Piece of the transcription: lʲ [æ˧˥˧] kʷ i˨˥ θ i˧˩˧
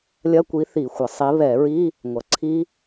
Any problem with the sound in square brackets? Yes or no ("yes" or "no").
yes